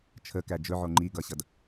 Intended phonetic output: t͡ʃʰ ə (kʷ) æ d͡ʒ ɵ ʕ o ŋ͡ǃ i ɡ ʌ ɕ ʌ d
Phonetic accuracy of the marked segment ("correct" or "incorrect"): incorrect